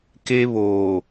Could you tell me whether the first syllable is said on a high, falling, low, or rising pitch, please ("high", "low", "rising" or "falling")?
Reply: high